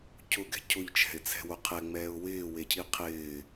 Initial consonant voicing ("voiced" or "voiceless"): voiceless